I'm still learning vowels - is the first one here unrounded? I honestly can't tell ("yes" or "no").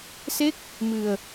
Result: yes